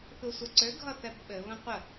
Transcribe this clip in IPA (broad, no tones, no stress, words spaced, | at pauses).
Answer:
θusʷəǀø ɡʱʌθɛbɓɘ βə̃qʷə